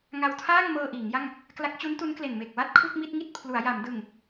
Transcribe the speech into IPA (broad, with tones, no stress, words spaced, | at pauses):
ŋa˧wtʰaː˥˩ŋmɤː˧ ʔiː˩˦ŋja˥˩ŋ | kla˦˥k̚t͡ɕu˦˥ntu˦˥nkle˨˩n me˨˩k̚wa˥˩t̚kʰu˥˩k̚ mi˥˩t̚ŋi˥˩t̚ pʰlu˩˦a̯ja˩˦m dɯ˨˩ŋ